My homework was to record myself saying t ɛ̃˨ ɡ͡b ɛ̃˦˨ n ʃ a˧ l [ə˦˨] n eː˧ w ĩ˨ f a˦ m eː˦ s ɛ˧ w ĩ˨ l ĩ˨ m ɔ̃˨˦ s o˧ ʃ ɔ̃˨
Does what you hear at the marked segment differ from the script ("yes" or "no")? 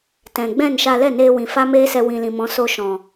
yes